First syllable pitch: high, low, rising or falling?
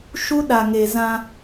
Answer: high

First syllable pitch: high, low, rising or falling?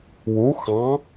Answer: rising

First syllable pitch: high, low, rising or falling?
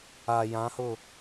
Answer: low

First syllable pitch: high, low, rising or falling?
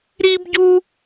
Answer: high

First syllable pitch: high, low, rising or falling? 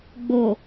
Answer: low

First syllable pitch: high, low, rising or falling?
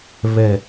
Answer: low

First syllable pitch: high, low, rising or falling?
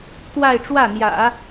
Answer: falling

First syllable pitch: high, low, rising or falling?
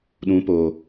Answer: rising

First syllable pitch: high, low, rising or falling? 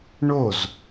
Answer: falling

